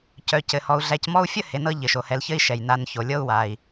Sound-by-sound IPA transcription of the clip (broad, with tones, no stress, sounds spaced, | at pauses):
c œ˨ c ɘ˩ h ɔ˨ u̯ ɮ æ˨ c m ɔ˦ u̯ fʲ ə˥ h e˨ n ɤ˦ ʎ ɘ˩ ʃ o˩ h ɛ˨ l ç ɘ˦ i̯ ʃ ɛ˩ j n a˨ n ç o˩ lʲ ɤ˦ u̯ w a˩ i̯